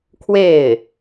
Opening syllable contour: falling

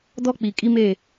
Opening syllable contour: high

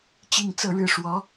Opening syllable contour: falling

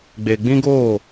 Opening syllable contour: low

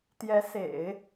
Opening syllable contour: rising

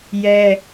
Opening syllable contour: high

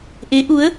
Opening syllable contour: rising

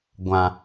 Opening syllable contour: low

